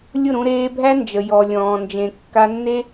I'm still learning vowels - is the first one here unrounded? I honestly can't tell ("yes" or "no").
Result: no